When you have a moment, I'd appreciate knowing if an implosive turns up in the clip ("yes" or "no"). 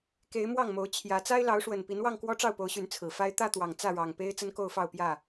no